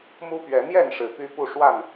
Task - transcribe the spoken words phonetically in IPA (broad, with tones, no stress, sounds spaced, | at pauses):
m u˦ p ɥ ɛ˨˦ n̪ j ɛ˥˨ n ʂ ɻ̩˨˩ p y˦ p u˥˨ ʂ w a˥˨ n